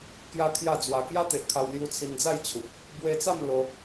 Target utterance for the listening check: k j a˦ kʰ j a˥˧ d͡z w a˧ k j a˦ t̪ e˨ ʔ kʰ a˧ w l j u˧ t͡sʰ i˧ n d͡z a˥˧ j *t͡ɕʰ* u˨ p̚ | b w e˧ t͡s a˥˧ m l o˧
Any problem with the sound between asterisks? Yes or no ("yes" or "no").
no